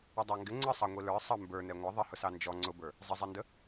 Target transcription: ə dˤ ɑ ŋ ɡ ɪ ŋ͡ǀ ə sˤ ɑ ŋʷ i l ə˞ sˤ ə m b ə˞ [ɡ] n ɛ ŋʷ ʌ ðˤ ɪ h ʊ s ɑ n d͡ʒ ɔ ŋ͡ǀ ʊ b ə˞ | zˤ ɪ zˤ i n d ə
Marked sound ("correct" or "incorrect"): incorrect